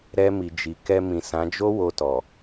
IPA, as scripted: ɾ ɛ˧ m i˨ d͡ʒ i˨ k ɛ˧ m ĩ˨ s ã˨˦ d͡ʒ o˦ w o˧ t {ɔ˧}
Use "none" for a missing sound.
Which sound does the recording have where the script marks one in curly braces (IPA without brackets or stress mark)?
ɔ˨